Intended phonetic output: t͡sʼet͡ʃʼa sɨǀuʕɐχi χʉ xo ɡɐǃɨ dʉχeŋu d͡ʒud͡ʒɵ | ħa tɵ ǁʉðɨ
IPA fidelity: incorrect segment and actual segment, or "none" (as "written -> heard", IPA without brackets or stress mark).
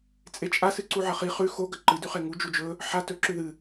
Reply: none